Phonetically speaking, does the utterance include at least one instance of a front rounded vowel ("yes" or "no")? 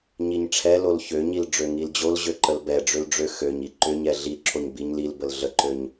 yes